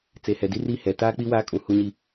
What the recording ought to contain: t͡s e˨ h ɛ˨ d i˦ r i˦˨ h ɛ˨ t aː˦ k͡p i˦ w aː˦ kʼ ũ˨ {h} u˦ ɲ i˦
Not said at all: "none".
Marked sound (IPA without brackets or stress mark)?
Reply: h